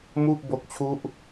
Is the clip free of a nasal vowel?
yes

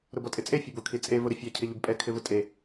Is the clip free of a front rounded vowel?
yes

